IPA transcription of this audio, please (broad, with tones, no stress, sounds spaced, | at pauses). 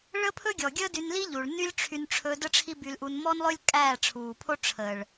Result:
ɭ əː˦ pʰ ɵ˦ ɡʲ ɔ˨ ɡʲ əː˦ d y˧ n l i˦ ʎ u˨ ɭ n y˦ lʲ ʈ͡ʂʰ y˧ n ʈ͡ʂʰ ɵ˧ d ə˦ ʈ͡ʂʰ i˦ b y˧ l ʔ u˧ n m ɔ˦ n lˠ ɵ˦ lʲ kʼ æː˦˨ ʈ͡ʂʰ uː˨ pʰ o˦ ʈ͡ʂʰ əː˨ ɭ